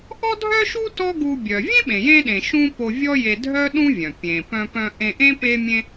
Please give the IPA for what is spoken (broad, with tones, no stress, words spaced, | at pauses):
ʔɔ˥dʱœ˥ʃu˥ tɔ˥ɡu˧ bʲœ˩ vʲẽ˥ɓẽ˩jẽ˧ɗẽ˩ ʃũ˥ po˧vʲɔ˥je˧ dʱœ˥ ɗũ˥vʲœ̃˩ pʲẽ˩ pœ̃˧pœ̃˧ ʔẽ˧ʔẽ˥ pe˥mʲẽ˥